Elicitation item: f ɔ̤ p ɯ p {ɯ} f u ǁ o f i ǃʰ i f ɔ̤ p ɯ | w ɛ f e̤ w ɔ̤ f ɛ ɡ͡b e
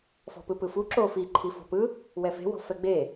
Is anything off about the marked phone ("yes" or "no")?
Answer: no